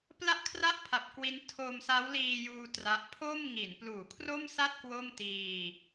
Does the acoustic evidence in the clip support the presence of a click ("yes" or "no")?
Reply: no